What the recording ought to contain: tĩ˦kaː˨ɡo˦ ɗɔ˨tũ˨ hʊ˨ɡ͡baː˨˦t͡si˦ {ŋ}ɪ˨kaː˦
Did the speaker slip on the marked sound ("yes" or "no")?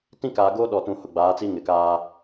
no